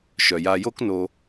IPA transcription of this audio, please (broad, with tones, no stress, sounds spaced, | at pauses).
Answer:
ʃ œ˨ j a˧ j o˦ k n o˧